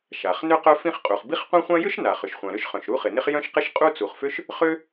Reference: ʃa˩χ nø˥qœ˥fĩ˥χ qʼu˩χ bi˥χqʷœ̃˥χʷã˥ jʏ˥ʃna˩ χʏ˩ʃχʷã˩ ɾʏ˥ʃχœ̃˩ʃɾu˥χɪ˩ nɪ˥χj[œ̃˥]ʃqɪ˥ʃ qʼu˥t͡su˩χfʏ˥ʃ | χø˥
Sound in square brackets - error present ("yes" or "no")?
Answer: no